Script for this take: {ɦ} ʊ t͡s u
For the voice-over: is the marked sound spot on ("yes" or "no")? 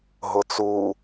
yes